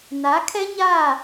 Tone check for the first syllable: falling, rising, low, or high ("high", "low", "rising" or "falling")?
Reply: rising